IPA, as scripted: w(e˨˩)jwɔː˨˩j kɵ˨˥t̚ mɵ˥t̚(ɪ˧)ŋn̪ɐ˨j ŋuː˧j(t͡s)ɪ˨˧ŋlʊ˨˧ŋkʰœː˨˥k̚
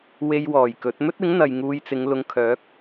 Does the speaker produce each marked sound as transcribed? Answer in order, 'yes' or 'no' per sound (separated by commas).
no, no, yes